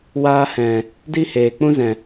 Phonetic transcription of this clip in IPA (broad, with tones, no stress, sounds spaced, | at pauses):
w aː˧ h ɛ̃˨ | d i˦ h eː˨ k͡p ũ˦ z ɛ̃˨